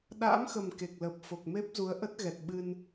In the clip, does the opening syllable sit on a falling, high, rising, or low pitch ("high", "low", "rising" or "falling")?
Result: rising